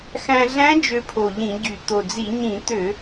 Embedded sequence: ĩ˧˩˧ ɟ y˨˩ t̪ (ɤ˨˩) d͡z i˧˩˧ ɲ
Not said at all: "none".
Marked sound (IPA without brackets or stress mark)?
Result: o˨˩